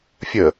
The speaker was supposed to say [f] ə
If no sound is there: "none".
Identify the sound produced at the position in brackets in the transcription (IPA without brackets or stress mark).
fʲ